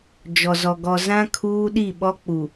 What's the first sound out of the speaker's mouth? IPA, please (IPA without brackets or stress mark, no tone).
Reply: d͡ʒ